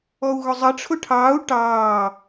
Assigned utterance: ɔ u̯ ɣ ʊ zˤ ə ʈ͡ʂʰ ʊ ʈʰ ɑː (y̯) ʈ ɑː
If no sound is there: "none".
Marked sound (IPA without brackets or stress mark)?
u̯